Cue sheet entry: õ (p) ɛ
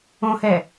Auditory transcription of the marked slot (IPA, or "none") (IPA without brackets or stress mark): h